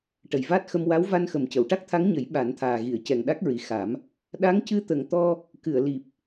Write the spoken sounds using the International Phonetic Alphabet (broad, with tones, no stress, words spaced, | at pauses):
ʈə˨˩jvaː˦˥t̚xə˧m wa˧˥wva˧nxə˨˩m cə˨˩˨w ʈa˦˥k̚t̪ʰa˧˥ŋɲə˨˩˦j ɓa˨˩˦nt̪ʰaː˨˩ɣi˨˩˨ə̯ cɛ˨˩ŋɗa˦˥k̚ɹi˨˩xa˨˩˦m | ɗa˧˥ŋcɨ˧˥t̪ə˨˩ŋt̪ɔ˧ | kɨ˨˩˨ə̯li˨˩p̚